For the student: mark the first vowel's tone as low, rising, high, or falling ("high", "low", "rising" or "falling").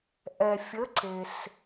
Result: low